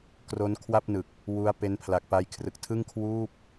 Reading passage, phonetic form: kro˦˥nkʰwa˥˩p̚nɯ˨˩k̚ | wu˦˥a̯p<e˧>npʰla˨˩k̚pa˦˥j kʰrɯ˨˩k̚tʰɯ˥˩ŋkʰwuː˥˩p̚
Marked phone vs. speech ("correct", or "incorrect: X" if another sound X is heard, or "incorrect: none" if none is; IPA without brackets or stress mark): incorrect: e˦˥